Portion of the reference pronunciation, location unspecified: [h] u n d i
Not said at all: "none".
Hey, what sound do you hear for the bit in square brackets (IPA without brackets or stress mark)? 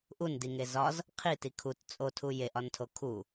ʔ